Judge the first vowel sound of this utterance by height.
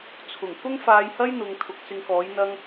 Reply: high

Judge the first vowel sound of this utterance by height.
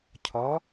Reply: low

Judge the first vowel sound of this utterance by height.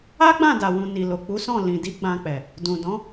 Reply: low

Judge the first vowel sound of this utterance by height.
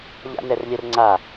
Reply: low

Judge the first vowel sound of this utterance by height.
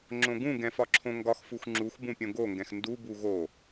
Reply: mid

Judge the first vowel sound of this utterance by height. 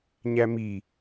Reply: low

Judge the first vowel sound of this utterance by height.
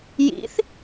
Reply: high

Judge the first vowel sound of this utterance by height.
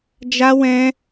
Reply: low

